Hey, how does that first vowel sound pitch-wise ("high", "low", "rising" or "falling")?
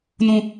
low